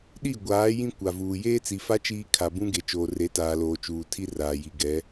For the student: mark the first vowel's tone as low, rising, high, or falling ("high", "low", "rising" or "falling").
falling